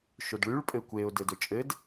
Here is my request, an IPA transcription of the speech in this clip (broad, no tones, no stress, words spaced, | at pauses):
ʃodɭyɭ pʼɘkʷeʊ̯ dɘdɵt͡ʃʼɘd